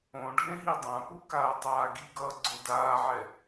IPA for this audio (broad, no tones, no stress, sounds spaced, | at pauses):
õ ɖʱ ẽ ɦ i dˤ ã p u k aː tˤ aː ɡ i ɡ ʌː ɡ͡ǀ o d aː ʕ ɛ